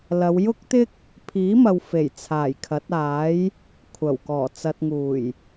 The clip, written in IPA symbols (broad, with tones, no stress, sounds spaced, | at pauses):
l ɐ˨˧ w j ʊ˥ k̚ t̪ ɪ˥ k̚ | pʰ iː˨˥ m ɐ˨ w f e˨˩ j t͡sʰ aː˨˩ j kʰ ɐ˨˥ t̚ aː˨˥ j | kʷʰ ɐ˨˩ w k ɔː˨˩ t͡s ɐ˨ t̚ ŋ uː˨˩ j